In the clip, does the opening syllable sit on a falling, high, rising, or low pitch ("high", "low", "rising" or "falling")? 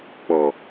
low